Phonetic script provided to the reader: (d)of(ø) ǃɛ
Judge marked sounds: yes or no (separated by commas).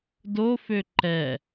yes, yes